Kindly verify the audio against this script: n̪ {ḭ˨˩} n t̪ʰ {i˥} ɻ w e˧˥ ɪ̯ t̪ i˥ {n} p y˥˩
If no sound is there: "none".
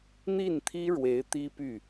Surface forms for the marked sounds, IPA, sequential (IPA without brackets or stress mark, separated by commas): i˥˩, i˥, none